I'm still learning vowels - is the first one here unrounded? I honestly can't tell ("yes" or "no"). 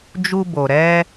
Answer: no